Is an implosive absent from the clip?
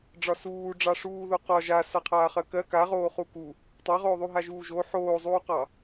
yes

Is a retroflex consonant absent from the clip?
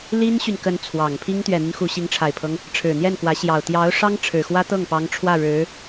no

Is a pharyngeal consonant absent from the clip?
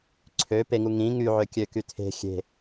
no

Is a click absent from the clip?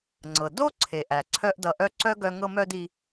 no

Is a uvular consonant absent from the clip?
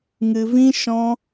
yes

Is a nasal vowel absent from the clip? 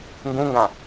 no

